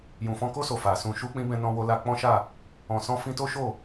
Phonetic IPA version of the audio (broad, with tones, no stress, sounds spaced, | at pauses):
j ũ˨ f ɔ̃˧ k o˦ s o˧ f a˨ s ũ˧ ʃ u˦ k͡p ĩ˦ b ɛ̃˧ n ɔ̃˧ w o˧ l a˧ k͡p ɔ̃˦ ʃ a˦˨ | ɔ̃˨ s ɔ̃˧ f ĩ˧ t o˦ ʃ o˦˨